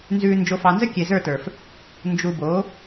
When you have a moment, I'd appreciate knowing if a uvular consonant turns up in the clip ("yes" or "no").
no